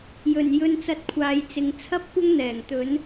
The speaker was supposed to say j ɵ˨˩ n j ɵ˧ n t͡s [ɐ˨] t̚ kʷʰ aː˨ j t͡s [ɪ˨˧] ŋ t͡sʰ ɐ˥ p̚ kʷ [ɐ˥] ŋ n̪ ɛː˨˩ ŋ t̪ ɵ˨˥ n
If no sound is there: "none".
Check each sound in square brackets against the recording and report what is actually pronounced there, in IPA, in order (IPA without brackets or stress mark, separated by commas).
ɐ˧, ɪ˨˧, ɐ˥